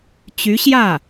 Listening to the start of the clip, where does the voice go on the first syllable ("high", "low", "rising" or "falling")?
rising